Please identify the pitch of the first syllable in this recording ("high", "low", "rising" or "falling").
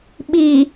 low